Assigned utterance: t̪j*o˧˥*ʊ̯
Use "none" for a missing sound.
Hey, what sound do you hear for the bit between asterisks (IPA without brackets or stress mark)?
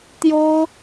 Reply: o˥